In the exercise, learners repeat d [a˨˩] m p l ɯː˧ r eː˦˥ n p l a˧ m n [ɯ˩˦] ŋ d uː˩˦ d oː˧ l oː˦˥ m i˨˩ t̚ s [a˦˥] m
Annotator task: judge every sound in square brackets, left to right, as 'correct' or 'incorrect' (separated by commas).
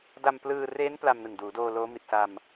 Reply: incorrect, incorrect, incorrect